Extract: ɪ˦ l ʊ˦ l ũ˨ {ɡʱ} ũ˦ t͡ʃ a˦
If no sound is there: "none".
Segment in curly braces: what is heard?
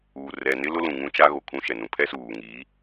ŋ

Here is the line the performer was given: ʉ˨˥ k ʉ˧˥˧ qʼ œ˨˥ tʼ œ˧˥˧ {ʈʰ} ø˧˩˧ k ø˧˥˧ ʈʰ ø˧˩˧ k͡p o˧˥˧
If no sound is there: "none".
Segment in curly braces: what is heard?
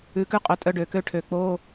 ɖ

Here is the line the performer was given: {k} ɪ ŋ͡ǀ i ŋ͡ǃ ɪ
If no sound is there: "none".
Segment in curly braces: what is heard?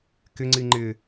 k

